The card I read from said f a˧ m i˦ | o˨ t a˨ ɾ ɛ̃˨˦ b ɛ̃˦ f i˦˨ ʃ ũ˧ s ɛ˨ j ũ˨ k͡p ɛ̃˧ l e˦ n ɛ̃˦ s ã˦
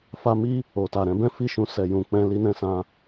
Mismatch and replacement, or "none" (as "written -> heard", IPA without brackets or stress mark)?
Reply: e˦ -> i˦